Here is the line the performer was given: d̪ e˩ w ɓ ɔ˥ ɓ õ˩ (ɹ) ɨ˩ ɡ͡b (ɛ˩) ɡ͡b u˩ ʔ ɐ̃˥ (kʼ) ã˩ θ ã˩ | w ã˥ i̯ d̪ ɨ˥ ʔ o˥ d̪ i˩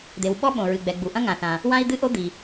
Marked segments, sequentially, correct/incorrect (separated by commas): correct, correct, incorrect